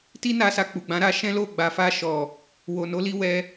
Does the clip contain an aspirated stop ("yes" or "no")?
no